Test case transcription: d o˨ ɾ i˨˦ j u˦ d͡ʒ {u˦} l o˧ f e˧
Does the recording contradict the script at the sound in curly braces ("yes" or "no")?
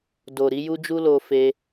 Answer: no